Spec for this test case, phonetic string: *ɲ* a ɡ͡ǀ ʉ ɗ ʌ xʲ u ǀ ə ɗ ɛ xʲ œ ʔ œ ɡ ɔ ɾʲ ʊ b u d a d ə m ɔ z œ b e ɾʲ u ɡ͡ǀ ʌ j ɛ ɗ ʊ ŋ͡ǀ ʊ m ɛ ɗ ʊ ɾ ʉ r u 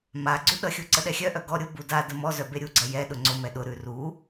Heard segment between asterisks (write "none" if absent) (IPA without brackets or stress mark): m